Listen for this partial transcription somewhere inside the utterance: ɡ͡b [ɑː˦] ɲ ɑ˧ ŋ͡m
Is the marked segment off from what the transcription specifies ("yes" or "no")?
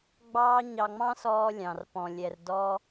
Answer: no